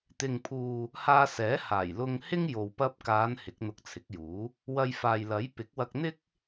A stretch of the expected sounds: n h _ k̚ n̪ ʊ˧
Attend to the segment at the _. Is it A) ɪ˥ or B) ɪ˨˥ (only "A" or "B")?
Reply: B